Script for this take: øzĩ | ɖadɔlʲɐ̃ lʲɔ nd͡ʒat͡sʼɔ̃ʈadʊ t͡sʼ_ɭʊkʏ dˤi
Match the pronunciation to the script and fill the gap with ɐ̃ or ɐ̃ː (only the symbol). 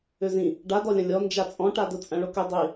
ɐ̃